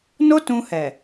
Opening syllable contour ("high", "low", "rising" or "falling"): high